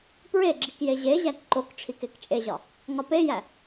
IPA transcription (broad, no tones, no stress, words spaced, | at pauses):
pɹeɡ͡ǁik jeʑeʑæk ǃok ʈ͡ʂʰikekt͡ʃʼeʑɒ | ŋɒpejæ